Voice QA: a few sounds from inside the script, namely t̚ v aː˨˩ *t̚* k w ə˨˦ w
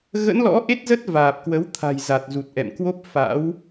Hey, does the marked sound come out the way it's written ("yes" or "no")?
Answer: no